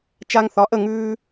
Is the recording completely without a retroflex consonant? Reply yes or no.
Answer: yes